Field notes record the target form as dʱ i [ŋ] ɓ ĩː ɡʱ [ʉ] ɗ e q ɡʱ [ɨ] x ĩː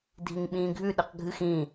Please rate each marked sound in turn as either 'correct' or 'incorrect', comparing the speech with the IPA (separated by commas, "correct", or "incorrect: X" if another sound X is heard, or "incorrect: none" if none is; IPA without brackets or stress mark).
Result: correct, correct, correct